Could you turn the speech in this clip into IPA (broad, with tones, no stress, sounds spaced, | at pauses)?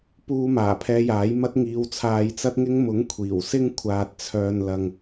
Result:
p uː˧ m aː˨˩ pʰ ɛː˧ j aː˨˥ j m ɐ˥ t̚ ŋ iː˨ w t͡sʰ aː˨ j t͡s ɐ˥ t̚ ŋ ɪ˥ ŋ m ʊ˨˥ ŋ kʷʰ iː˨˩ w s ɪ˥ ŋ kʷʰ aː˨ t̚ t͡sʰ œː˨ n l ɐ˨ ŋ